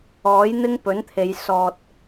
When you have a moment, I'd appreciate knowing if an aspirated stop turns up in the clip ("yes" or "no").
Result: yes